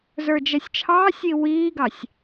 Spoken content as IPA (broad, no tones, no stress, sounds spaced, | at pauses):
z ə˞ d͡ʒ ɛ sʲ t͡ʃʰ ɑː sʲ i w iː ɡ ɑ sʲ